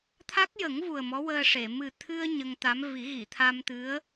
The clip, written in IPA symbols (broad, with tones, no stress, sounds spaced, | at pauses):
t̪ʰ a˦˥ k̚ j ə˨˩˦ ŋ v u˨˩ ə̯ m ɔ˧˥ w əː˧ ʂ e˨˩˨ m ɨ˨˩ t̪ʰ ɨ˧ ə̯ ɲ ə˧ ŋ t̪ a˧˥ m v i˨˩˦ ɣ i˨˩˨ t̪ʰ a˧ m t̪ ɨ˧˥ ə̯